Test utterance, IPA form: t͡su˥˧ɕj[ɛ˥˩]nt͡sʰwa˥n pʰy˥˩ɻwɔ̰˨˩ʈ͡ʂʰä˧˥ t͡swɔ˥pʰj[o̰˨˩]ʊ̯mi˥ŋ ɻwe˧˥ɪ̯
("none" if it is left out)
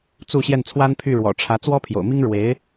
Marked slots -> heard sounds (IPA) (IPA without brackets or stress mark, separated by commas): ɛ˥˩, o̰˨˩